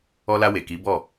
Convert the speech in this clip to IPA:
ɔ˧ l a˧ w e˨ k i˨˦ b ɔ˦˨

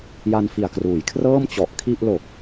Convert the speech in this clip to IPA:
j a˧ n f i˨˩ a̯ k r uː˩˦ j kʰ r ɤː˥˩ m t͡ɕ ɔ˨˩ ʔ kʰ i˥˩ ʔ l o˨˩ k̚

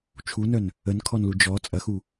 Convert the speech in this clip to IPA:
t͡ʃʰ u n œ n | ə n kʰ ɔ n l u d͡ʒ ɔ t͡sʼ ɐ x u

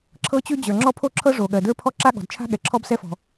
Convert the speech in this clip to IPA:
ǁʰ ɤ˥ t͡ɕ ʉ˥ d͡ʑ ə˞˩ ŋ͡ǁ ɔ˥ pʰ o˥ ǁʰ ɤ˥ ʐ o˩ ɠ ɜ˩ d ə˞˥ pʰ ɔ˥ ǁ a˥ ɠ ɔ̤˩ d t͡ʃʰ a̤˥ ɠ ɛ˩ ǁʰ ɔ˥ b s ɛ˥ f ɔ̤˩

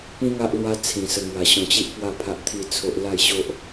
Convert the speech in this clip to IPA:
p ĩ˦ ŋ a˦ ʔ l w a˦ t͡sʰ ĩ˨˩ s ə˧ ŋ w a˨˩ ɕ ɔ̃˧ t͡ɕ i˦ ʔ p w a˥˧ pʰ a˦ ʔ t̪ʰ i˥˧ t͡sʰ o˦ ʔ l a˥˧ j ɕ o˦ ʔ

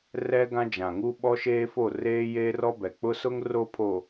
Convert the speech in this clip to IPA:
r ɛ˦ ɡ ã˦ d͡ʒ ã˨ ŋ u˦ ɓ ɔ˦ ʃ eː˦ f o˦˨ r eː˦ j eː˦ r ɔ˦ b ɛ˨ k͡p ʊ˦ s ʊ˦ ŋ r o˦ pʰ o˨

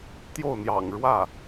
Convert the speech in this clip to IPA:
t̪ j o˥˩ ʊ̯ n̪ j ɑ̰˨˩ ŋ ɻ w ä˥˩

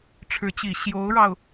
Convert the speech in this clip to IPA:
ʈ͡ʂʰ ɻ̩˧˥ t͡ɕ i˨˩ ɕ j o˧˥ ʊ̯ ɻ ɑ˧ ʊ̯

